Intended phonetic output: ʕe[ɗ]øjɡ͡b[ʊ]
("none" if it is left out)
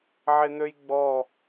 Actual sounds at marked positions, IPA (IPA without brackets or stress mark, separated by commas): n̪, ɔ